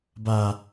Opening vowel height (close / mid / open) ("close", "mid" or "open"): open